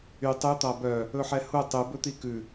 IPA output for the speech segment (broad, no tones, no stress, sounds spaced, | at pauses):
y tˤ ʉ t̪ ɑ b œ | ɵ ħ ɛ h u tˤ ʉ b ɵ t̪ i k ʉ